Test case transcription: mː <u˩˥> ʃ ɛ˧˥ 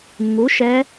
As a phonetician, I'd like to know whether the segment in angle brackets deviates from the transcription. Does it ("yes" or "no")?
no